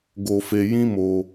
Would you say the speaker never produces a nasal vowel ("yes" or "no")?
no